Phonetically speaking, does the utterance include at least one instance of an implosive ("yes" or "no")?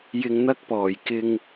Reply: no